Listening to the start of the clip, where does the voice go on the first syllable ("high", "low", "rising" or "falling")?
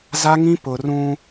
high